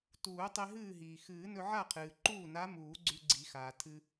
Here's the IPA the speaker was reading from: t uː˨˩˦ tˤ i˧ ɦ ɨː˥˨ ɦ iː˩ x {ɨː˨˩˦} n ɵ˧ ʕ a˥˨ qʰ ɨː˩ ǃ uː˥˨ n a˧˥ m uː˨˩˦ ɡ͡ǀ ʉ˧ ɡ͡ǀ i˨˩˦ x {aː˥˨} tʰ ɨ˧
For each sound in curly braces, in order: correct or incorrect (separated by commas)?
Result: correct, incorrect